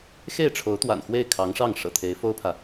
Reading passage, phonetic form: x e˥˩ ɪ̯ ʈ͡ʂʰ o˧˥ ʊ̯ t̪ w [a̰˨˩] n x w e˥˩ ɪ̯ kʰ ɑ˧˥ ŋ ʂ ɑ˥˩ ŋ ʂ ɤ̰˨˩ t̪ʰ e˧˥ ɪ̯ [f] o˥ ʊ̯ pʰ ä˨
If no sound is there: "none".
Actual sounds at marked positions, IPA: a̰˨˩, f

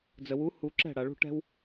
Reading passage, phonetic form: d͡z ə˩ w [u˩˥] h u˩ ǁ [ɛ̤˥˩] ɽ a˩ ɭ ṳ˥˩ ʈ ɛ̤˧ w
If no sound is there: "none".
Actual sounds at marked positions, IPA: u˩˥, ɛ̤˥˩

